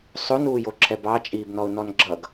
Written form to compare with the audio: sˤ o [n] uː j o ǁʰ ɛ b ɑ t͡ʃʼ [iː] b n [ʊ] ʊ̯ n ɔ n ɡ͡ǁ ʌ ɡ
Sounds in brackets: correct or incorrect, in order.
correct, correct, incorrect

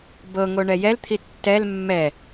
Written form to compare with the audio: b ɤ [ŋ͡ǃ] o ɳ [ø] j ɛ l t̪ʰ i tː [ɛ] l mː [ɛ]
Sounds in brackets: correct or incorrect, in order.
incorrect, incorrect, correct, correct

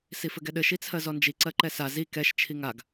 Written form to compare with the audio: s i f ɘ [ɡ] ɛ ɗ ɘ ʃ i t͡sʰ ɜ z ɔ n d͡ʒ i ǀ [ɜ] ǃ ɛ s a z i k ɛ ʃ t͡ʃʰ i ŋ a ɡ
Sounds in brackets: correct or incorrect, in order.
correct, correct

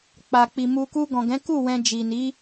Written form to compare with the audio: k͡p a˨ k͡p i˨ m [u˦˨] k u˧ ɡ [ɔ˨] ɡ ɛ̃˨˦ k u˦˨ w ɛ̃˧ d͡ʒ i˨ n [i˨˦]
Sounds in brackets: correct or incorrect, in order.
incorrect, incorrect, correct

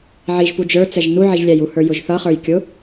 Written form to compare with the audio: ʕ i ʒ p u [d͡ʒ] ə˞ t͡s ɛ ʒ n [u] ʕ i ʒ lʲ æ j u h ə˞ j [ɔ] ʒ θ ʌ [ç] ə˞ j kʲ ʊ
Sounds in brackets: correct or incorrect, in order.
correct, correct, incorrect, incorrect

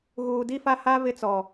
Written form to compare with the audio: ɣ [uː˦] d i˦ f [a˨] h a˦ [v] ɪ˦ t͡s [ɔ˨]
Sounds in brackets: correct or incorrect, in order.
incorrect, incorrect, correct, correct

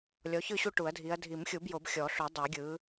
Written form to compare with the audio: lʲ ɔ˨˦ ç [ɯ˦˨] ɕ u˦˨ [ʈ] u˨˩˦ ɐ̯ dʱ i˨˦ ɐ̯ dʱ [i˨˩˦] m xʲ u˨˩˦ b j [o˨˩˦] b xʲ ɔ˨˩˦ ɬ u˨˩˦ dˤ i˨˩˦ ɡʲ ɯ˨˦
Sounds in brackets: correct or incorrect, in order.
correct, correct, correct, correct

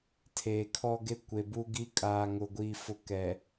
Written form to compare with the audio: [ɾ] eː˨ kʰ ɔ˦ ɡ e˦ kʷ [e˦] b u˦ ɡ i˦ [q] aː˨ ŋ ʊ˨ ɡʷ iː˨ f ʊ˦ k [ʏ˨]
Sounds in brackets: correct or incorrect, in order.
incorrect, incorrect, incorrect, incorrect

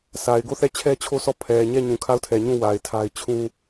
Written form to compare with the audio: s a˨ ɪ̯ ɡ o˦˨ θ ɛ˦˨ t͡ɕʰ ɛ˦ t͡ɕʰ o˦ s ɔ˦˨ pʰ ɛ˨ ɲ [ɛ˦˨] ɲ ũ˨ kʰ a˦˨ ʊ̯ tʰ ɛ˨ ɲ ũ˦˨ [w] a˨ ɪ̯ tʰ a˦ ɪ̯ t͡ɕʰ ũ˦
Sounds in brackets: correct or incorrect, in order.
correct, correct

